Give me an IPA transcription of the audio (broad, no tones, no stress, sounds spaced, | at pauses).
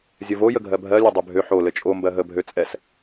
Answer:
zʲ ɘ v o j ə ɡʱ ɜ bʱ ɜ lʲ ɘ dˤ ø bʱ ø ħ o l ɘ t͡ʃʼ o m b ɜ ɦ ə bʱ ø t͡sʼ ɛ s